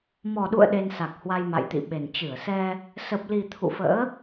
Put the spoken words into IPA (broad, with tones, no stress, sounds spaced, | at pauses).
m ɔ˨˩ ɗ ṵ˧˨ ə̯ ɗ e˧ n s a˨˩ k̚ h w a˧ j m a̰˧˨ j t̪ ḭ˧˨ ɓ e˨˩ n t͡ɕ ɨ˧˩ ə̯ s ɛ˧ | s ə˨˩ p̚ l i˨˩ t̪ʰ ṵ˧˨ f ə̰ː˧˥